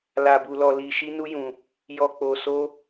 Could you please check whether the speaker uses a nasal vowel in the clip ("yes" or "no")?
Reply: yes